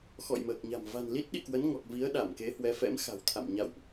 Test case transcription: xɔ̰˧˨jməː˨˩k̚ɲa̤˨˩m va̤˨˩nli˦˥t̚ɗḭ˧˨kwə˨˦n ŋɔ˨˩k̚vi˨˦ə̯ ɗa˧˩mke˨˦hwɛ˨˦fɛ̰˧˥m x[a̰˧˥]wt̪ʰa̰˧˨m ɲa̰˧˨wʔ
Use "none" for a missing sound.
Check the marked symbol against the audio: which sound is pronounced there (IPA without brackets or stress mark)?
a̤˨˩